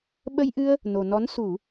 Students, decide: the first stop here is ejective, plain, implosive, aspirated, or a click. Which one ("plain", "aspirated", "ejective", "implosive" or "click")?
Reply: implosive